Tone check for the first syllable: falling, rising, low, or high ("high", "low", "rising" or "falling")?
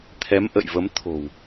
rising